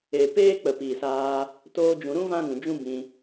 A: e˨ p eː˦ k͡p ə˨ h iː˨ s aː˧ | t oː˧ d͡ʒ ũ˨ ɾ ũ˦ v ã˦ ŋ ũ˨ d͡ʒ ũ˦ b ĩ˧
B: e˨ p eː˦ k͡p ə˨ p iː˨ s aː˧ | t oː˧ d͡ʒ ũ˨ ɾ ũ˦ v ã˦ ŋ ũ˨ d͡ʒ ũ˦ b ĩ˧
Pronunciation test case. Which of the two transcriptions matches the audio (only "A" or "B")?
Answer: B